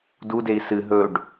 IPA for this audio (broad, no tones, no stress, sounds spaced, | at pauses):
d u d e i̯ s ɨ ɦ ɵ ɖ